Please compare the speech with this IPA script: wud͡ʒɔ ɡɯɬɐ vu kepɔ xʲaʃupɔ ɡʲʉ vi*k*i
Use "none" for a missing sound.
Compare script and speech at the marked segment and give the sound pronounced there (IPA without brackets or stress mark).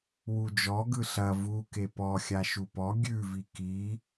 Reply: k